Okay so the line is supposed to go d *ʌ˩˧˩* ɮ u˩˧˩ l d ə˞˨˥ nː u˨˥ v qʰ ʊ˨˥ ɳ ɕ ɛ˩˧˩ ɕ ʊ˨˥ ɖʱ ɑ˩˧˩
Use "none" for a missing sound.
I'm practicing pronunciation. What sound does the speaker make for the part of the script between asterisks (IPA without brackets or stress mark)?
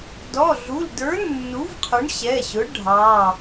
ɔ˩˧˩